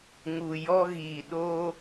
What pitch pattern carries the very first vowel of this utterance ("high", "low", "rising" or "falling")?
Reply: low